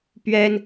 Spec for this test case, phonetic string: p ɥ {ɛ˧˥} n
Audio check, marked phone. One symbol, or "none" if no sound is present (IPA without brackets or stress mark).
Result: ɛ˥